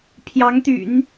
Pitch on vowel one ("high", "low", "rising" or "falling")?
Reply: rising